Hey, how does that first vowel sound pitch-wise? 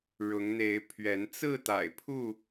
rising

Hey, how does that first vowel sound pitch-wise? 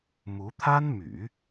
rising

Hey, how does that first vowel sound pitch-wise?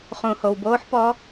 low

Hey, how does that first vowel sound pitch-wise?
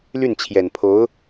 falling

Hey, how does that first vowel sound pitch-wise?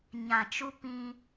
low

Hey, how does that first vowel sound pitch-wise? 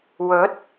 rising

